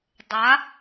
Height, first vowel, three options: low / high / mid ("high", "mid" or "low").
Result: low